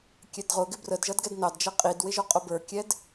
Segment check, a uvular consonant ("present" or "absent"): present